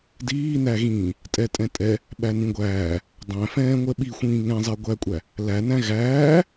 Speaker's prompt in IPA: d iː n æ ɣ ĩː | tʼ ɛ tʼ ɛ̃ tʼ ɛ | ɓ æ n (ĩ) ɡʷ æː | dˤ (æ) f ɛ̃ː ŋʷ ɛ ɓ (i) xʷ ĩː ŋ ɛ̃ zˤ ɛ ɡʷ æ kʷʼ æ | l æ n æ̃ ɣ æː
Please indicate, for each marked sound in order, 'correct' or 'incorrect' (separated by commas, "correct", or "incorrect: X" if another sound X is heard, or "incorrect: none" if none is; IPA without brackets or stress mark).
correct, incorrect: æ̃, correct